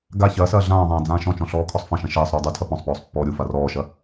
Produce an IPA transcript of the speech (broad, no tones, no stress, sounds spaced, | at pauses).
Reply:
ɡ a ç ɐː s ɐː ɮ ãː ðˤ ãː d͡z ãː ʃ ɔ̃ t͡ʃ ɔ̃ ɬ ɔː kʰ ɔ sˤ f ɐ̃ ʃ ɐ̃ ʃ ɐː sˤ ɾ uː dˤ u tʰ ɐ p ɔ̃ sˤ p ɔː sˤ pː ɔː ɾʲ u f a r ɔː ʃ ɐ